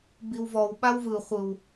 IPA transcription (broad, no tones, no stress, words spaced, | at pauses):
biwvɔw ɓawvɯ χʷɯw